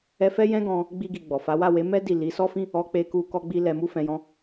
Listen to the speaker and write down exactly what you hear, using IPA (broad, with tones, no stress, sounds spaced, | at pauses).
ɛ˦ f ɛ˦ j ɛ̃˦ ɡ ɔ̃˧ | ɡ͡b i˧ ɡ i˨ ɡ͡b ɔ˨ f a˨˦ w a˦˨ w e˨˦ m ɛ˦ d i˦˨ l i˨˦ s ɔ˦ f ĩ˦ | ɔ˧ k͡p e˧ k u˧ k ɔ˧ ɡ͡b i˧ l ɛ˧ m u˦ f ɛ̃˧ j ɔ̃˧